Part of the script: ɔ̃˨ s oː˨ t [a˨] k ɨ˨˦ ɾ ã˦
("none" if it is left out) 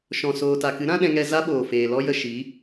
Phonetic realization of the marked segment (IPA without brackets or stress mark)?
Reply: a˨